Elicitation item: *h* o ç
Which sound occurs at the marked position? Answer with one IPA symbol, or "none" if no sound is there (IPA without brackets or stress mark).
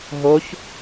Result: ɦ